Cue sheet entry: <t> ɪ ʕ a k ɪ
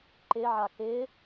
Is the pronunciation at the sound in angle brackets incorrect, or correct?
incorrect